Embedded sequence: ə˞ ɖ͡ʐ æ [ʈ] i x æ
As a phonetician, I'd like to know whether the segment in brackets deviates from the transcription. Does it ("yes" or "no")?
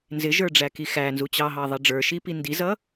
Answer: yes